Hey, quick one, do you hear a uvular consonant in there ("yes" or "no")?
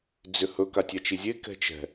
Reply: no